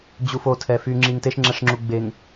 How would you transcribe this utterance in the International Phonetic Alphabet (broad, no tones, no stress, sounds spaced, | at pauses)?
d͡ʑ u f o tʰ ɛ f y ŋ͡ǁ i ŋ t e ʃ ŋ͡ǁ ɛ ʂ ŋ͡ǁ u ɡ͡b e ŋ